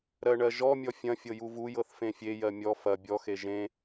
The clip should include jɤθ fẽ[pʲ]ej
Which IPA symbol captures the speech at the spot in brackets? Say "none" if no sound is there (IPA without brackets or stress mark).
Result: fʲ